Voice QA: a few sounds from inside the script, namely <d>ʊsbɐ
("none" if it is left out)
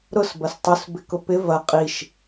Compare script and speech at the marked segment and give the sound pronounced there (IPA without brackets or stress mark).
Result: ɾ